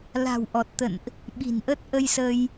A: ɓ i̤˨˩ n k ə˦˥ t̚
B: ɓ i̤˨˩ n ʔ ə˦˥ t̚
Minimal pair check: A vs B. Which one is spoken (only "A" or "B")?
B